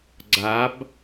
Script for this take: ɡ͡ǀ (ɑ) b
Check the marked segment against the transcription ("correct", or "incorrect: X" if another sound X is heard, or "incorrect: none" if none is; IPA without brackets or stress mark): incorrect: a